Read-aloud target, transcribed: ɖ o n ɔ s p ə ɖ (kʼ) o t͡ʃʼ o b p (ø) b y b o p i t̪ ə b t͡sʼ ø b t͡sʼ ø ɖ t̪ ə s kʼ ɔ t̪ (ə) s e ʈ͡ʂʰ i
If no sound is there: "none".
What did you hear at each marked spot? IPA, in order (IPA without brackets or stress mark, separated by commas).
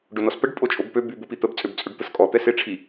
pʼ, ø, ɛ